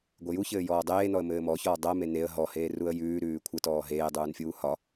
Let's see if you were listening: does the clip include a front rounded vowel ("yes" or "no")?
no